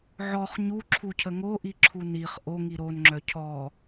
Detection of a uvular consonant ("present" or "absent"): present